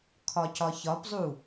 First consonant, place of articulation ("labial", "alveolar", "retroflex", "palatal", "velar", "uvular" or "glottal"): velar